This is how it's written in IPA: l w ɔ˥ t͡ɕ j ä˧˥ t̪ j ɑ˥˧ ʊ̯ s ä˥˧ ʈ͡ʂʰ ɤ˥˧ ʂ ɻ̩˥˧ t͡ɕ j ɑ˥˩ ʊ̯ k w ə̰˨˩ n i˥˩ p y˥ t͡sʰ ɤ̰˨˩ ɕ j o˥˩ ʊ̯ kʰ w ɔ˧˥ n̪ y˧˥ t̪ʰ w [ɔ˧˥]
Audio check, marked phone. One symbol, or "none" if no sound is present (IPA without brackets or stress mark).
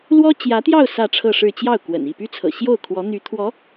ɔ˧˥